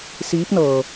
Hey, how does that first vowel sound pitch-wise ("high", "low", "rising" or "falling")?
rising